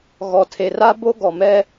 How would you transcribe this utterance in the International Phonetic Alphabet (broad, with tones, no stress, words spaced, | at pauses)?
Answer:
ɣɔ˨tʰe˨ra˦ bo˦ ɡɔ˨mɛ˦